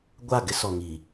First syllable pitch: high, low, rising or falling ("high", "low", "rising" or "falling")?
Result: falling